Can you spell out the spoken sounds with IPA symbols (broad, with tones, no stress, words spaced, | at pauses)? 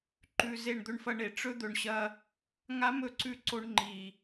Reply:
ǃʉ˨ ze˦˨ɳd̪ɵ˦ɳfɐ˦ɳe˨ ʈ͡ʂɵ˦d̪ɵ˨ɳɕɐ˦ | ŋa˦mɵ˨ǀʉ˦ ǀo˦ɳŋ͡ǃi˨